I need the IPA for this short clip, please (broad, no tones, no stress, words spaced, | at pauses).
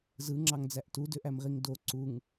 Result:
zɯŋ͡ǁɑŋd͡zæʔ tudøʔæmʁiŋ do ǀuŋ